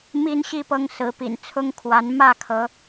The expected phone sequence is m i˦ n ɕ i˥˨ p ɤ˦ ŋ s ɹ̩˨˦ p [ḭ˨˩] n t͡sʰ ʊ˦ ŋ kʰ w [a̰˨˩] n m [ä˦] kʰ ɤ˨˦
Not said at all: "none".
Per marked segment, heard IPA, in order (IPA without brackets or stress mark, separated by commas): ḭ˨˩, a˨˦, ä˥˨